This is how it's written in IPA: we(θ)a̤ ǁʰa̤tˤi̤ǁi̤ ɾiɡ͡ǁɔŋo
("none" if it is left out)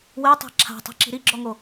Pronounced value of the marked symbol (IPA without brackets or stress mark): tˤ